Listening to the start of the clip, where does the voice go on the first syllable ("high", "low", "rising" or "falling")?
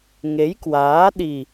rising